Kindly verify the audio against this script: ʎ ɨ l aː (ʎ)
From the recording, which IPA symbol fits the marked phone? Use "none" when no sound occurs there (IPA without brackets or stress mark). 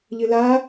none